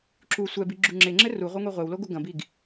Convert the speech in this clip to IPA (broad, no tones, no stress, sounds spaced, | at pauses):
ǁ u sʷ ɛ b i ɡ͡ǁ u ŋ͡ǁ e ŋ͡ǁ ɘ r u ʁʷ e ŋʷ i ʁʷ e w l o ɡ o ɡ ɐ̃ b i ɡ